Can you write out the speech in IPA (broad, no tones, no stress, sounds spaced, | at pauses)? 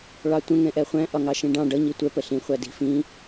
ɭ ɑ tʷ ə̃ ŋ ɛ̃ ʔ ɛ χʷ æ̃ ʔ ɒ ŋ ɑ ʃ ĩ ɖ ɑ̃ ɖ ʌ ɲ i tʷ ɛ p ə ɬ ĩ χʷ æ d i̤ f ĩ